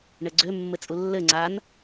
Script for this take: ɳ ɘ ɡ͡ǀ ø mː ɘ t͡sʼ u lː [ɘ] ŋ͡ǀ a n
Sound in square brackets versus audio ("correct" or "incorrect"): correct